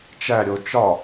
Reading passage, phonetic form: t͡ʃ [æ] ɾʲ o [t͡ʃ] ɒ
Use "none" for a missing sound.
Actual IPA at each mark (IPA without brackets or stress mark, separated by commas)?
æ, t͡ʃ